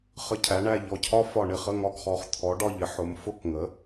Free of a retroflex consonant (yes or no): no